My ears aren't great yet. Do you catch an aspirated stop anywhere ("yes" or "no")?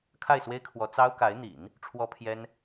yes